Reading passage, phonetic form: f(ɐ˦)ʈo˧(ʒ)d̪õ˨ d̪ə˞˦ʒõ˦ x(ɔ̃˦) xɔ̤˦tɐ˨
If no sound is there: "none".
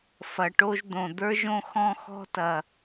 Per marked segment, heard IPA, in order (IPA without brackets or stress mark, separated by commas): ɐ˨, ʒ, ɔ̃˧